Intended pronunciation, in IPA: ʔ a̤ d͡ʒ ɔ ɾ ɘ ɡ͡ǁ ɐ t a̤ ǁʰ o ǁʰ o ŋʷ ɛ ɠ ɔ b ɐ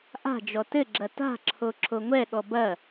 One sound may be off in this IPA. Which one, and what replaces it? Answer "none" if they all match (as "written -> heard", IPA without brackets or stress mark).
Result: ɾ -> t